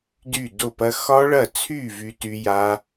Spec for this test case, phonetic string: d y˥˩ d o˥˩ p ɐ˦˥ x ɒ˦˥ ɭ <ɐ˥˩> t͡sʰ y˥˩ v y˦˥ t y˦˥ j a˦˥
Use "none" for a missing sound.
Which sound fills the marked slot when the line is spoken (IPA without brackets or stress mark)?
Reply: ɐ˥˩